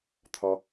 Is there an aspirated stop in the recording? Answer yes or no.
yes